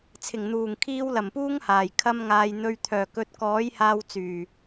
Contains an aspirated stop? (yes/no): yes